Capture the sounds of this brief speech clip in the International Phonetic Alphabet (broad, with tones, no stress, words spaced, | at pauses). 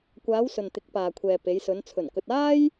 kʷaː˨˧w sɵ˨nt̪ɪ˨˥k̚paː˨kʷʰɛː˨ pe˨˧jsɵ˨˧n t͡sʰɵ˨˩nkɵ˨t̚aː˥j